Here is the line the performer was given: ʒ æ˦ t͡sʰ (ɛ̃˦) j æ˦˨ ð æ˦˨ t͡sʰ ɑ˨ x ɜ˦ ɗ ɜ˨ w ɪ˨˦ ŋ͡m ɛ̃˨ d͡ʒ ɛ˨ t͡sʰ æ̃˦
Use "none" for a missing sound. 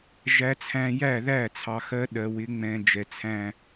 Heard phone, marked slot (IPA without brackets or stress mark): æ̃˦